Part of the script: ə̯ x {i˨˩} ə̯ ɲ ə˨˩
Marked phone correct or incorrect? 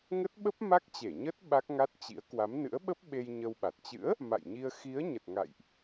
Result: incorrect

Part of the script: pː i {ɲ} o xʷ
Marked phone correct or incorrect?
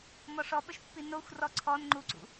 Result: incorrect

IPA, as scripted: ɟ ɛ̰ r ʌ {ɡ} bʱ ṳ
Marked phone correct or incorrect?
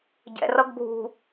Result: correct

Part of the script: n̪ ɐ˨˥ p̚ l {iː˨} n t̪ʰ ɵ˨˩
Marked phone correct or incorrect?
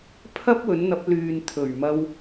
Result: incorrect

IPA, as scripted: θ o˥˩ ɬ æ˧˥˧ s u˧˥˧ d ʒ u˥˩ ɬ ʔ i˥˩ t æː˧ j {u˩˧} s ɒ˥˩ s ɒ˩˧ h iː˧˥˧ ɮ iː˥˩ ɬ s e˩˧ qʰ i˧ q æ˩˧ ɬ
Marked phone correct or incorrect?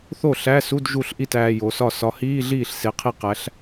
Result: incorrect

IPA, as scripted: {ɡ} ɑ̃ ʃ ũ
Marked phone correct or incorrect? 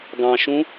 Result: correct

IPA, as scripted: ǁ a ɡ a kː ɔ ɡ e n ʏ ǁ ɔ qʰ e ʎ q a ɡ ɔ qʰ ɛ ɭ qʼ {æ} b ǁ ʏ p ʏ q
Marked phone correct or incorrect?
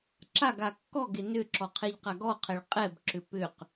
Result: incorrect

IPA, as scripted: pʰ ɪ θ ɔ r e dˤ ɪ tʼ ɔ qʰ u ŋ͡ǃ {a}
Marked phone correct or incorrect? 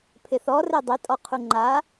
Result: correct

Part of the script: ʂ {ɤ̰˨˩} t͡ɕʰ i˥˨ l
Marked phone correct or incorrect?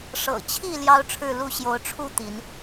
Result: correct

